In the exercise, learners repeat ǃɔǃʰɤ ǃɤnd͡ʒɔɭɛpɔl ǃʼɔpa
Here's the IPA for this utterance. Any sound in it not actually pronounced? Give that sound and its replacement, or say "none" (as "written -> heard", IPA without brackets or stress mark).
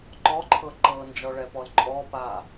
none